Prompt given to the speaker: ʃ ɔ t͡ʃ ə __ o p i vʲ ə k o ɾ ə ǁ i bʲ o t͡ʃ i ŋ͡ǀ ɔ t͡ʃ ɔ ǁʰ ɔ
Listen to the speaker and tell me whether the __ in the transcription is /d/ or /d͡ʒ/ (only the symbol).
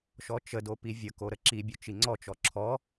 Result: d